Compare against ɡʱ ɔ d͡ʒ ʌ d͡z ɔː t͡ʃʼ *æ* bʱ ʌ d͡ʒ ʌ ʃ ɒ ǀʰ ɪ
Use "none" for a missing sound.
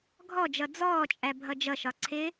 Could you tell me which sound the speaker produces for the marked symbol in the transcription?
æ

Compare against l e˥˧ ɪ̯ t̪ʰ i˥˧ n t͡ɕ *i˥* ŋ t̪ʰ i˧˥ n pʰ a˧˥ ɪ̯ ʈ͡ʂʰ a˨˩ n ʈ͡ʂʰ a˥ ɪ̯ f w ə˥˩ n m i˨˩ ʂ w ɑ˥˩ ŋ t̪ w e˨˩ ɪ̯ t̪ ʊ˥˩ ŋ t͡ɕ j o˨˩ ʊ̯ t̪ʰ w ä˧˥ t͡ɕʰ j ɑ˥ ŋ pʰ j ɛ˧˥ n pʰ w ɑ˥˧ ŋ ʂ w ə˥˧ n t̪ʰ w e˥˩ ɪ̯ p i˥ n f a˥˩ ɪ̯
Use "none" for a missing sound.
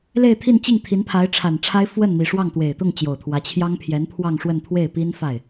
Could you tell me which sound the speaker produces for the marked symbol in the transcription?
i˥˩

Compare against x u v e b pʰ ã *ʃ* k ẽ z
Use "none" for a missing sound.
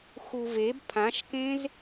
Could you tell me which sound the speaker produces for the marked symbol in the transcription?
ʃ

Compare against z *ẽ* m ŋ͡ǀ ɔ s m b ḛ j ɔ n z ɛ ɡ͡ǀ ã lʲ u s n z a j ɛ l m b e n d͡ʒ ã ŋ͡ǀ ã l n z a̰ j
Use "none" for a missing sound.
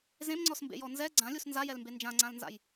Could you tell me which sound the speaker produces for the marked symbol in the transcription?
ẽ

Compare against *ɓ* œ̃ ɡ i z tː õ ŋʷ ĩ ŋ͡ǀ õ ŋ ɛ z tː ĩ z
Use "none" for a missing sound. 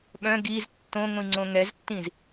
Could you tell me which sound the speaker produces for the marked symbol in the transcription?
ɓ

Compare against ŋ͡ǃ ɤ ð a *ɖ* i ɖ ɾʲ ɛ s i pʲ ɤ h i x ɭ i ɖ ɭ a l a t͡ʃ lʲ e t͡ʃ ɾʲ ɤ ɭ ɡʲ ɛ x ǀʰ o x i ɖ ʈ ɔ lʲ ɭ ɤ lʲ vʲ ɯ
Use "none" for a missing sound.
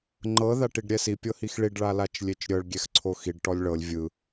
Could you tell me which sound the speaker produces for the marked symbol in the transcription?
ʈ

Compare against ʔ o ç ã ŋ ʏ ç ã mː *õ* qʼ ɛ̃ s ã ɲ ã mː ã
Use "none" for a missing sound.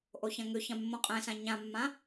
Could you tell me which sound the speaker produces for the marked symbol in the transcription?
õ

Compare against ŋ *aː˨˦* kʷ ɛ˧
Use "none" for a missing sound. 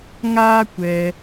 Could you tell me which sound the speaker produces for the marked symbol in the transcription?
aː˦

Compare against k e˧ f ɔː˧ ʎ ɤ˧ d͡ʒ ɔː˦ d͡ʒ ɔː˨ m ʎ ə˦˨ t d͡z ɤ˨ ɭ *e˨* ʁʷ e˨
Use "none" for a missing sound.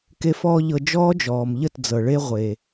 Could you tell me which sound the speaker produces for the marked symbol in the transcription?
e˧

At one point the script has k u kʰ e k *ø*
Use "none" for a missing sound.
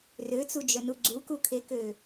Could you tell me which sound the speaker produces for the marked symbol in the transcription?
ø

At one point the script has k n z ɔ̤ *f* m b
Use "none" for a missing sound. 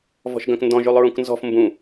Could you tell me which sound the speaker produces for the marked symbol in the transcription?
f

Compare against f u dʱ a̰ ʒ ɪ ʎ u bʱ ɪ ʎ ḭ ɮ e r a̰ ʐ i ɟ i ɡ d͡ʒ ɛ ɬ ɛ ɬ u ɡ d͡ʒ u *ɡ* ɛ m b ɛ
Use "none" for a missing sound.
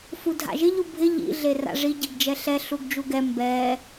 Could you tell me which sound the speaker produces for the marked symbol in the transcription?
ɡ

